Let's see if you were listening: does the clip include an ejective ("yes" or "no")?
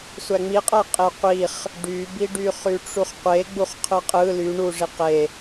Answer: yes